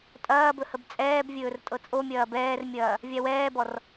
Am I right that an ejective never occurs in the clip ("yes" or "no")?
no